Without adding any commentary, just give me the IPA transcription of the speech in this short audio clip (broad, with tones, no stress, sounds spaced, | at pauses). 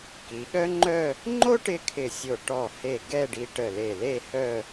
k i˩˧ ɠ œ˥ ŋ͡ǃ œ˥˧ | ŋ͡ǃ o˥ ʈ ɪ˥˧ kʰ ɪ˧˩ sʲ o˧˩ ʈ ɔ˧˩ h e˧˩ ɡ ɛ˥˧ ɖ i˧ ʈ ə˧˩ l e˧˩ l e˥˧ h œ˥˧